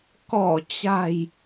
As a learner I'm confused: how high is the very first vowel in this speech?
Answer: mid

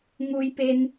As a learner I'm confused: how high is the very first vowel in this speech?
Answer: high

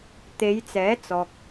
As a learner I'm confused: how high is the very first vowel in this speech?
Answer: mid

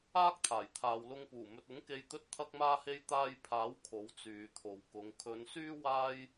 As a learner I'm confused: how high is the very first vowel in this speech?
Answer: low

